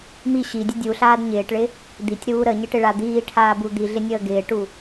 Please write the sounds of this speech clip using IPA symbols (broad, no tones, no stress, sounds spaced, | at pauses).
m i ɕ i dʲ ə dʲ u ɬ aː d ɲ ɪː ʈ ɭ ɪ | d̪ i tʲ ɾ uː ɾ ə ɲ ɪ ʈ ɪ ɭ a d̪ iː ʈʰ aː b u d̪ i ɮ ɪ nʲ əː ɡ ɪː ʈ u